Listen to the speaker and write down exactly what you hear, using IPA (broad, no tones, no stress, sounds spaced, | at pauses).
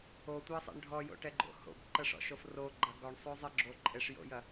o tʷ e sˤ ḛ ɳ ɖʱ ɔ j o̰ ʈ ɛ ɡ͡ǃ o̰ h o̰ b ǃ ə ʂ ɔ̰ ʃ o f r o ɡ͡ǃ ɐ ɡ ɔ ɳ sˤ o zˤ e ɡ͡ǁ o ǃʼ e ʂ j o̰ j ɐ